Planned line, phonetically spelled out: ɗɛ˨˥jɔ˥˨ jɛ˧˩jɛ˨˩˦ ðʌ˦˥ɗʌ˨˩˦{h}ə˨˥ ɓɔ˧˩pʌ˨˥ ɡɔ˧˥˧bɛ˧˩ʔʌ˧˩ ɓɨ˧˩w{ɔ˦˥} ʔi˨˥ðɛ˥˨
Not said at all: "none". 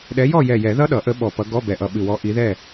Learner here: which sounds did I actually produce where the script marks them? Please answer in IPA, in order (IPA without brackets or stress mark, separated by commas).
ʔ, ɔ˨˥